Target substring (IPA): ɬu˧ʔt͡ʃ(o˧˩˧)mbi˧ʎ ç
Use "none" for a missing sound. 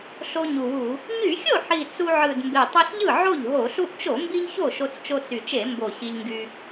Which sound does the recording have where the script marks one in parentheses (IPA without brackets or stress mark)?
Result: o˧˩˧